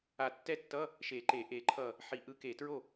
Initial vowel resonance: oral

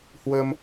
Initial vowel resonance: oral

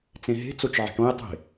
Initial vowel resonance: nasal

